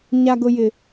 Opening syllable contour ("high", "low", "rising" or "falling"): high